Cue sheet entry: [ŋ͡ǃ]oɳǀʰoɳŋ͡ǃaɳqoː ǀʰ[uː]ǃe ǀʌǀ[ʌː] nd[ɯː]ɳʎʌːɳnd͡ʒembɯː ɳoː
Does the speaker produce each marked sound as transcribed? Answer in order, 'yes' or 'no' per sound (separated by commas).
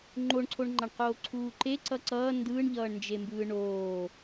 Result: yes, yes, yes, yes